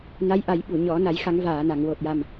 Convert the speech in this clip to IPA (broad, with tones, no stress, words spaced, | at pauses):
na˧˥jʔa˨˩˦jɓu˨˩˨ɲɔ˨˩˦ na˨˩˦jxa˨˩˦ŋvaː˨˩˨na˨˩˨ŋ wo˨˩t̚ja˨˩m